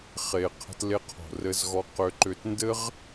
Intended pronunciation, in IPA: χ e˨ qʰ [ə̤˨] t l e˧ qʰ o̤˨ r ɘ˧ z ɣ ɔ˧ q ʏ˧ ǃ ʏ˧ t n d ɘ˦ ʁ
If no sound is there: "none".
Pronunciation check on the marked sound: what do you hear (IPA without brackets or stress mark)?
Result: ə̤˧